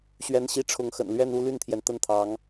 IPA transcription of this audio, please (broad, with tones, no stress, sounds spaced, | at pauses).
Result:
ɕ ɥ ɛ˧˥ n ɕ i˧˥ ʈ͡ʂʰ ʊ˧˥ ŋ x ə̰˨˩ n l ɥ ɛ˥˧ n u˥˧ l y˥˩ n t̪ʰ j ɛ˩ n t̪ ə˥˩ n t̪ʰ ɑ˧˥ ŋ